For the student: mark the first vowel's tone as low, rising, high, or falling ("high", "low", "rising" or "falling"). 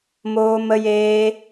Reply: high